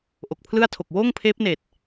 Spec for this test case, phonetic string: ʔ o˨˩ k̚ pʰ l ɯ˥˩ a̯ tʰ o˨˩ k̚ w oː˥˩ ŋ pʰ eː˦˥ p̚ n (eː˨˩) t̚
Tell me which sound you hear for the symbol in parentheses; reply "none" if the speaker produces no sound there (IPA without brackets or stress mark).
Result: eː˨˩